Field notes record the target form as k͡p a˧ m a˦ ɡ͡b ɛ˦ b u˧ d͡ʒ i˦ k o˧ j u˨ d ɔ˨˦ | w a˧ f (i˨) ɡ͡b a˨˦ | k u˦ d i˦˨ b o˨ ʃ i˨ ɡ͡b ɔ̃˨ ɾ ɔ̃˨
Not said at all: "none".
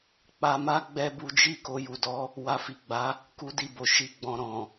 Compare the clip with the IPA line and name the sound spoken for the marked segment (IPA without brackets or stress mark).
i˨